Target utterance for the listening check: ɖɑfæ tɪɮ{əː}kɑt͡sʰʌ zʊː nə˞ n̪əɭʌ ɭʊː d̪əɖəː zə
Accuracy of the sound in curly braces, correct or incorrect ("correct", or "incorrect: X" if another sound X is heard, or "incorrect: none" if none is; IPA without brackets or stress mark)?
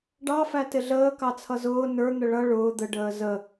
correct